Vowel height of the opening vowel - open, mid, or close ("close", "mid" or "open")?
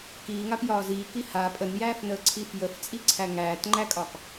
close